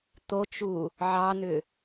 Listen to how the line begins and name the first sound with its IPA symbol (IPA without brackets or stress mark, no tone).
t̪